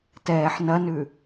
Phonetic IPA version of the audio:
t ɛː ħ n ɐ n ʉ

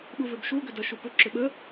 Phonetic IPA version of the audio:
ɓ u v ʏ b ʃ u ɡ ʏ d ɐ ʃ u p ʏ ǁ ʏ ɓ ə

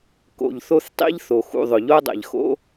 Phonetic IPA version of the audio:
k o̰˩ ʎ θ o˦ θ tˤ ḭ˦ ʎ θ o˩ x ṵ˨ ðˤ ʊ˩ ʎ o˦ dˤ ɛ̰˩ ʎ x o̰˦

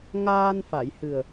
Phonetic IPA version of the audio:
ŋ aː˧ n f a˨˩˨ j h ɨ˨˩ ə̯

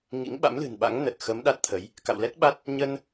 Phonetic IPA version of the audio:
ŋ ḭ˧˥ ŋ ɓ a̰˧˥ m l ɨ̤˨˩ n ɓ a̰˧˥ ŋ n ə˨˩ t̚ x ə˨˦ m ɗ a˦˥ t̚ t̪ʰ ə˨˦ j | k a̰˧˨ w l ɛ˦˥ t̚ ɓ a˦˥ t̚ | ɲ ə˧ n

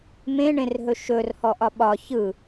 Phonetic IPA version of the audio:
m ẽ ɳ ẽ r ɦ ɵ ʃ ɵ r h ɔ ʔ ɒ ɓ ɒ ç ɯ

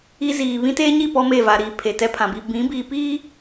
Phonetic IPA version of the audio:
i˦ z iː˨ β ĩ˦ t eː˦ ɲ i˦˨ p ɔ˦ m e˦˨ v a˨ ɾ iː˨ pʰ e˨ t ɛ˦ pʰ ã˨ b i˦ b ĩ˨˦ b iː˨ p iː˦

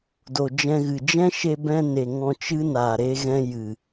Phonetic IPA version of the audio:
d o˨ d͡ʒ ɛ̃˧ ɣ ɨ˨ d͡ʒ ɛ̃˦ ʃ e˧ b ɛ̃˧ n e˨ ŋ ɔ̃˧ t͡ʃ ɨ˦ n aː˨ ɾ e˧ ɣ ɛ̃˧ j ɨ˨

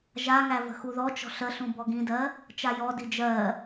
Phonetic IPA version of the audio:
ʒ a ŋ æ v ə̤ x u ð ɔ t͡ʃ ɔ̤ ɬ ə ɬ ũ b ɔ ɡ ĩ d ɜ | t͡ʃ a j ɔ d i d͡ʒ ɜ

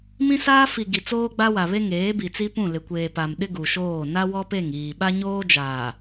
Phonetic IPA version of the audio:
m ĩ˦ s aː˦ f i˨ ɡ i˨ t͡s oː˦ ɡ͡b a˦ w a˨ β e˦ ŋ eː˨˦ b i˨ t͡s i˦ p ũ˦˨ l ɪ˨ kʷ eː˨ p a˨ m ɗ ɪ˦ ɡ u˨ ʃ oː˦˨ n a˦ w ɔ˦ p e˦˨ ŋ iː˨ ɓ a˦ ɲ oː˦ d͡ʒ aː˨

